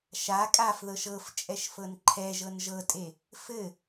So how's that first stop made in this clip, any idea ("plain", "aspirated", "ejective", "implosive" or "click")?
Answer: ejective